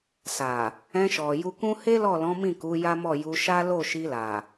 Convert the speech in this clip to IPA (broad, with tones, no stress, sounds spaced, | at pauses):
s a˨ | ɛ̃˧ ʃ ɔ˨ j u˧ k ũ˦ h e˦ l ɔ˦˨ l ɔ̃˨˦ m ĩ˦˨ k u˨˦ j a˦ m ɔ˦˨ j u˧ ʃ a˦ l o˦˨ ʃ i˧ l a˨